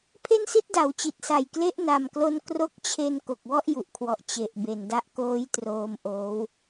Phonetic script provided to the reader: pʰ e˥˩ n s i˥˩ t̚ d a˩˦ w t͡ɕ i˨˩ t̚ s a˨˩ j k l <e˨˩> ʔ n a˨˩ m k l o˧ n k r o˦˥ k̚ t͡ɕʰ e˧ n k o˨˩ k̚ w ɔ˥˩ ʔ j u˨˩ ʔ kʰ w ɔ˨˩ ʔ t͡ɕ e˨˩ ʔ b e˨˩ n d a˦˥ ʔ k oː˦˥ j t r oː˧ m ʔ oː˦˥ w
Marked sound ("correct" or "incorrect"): incorrect